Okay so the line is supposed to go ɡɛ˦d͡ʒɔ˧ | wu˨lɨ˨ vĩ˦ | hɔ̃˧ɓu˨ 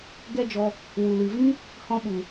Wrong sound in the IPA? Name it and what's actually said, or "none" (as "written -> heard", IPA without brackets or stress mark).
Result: none